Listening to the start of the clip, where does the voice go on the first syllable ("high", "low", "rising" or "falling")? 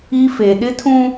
high